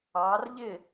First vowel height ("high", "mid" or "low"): low